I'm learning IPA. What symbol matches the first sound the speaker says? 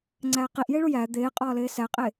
ŋ͡ǀ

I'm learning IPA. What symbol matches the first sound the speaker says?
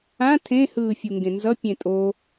ã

